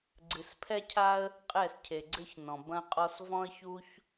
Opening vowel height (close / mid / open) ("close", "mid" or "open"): close